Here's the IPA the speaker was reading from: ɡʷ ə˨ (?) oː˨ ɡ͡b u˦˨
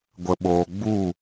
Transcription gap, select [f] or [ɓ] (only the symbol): ɓ